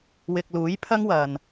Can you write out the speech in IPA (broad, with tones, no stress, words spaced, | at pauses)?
wɪ˨k̚luː˨˥jpʰɐ˥ŋ wɐ˨n